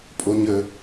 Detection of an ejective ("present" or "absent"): present